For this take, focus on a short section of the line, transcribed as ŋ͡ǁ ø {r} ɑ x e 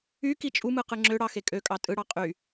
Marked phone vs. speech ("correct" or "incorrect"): incorrect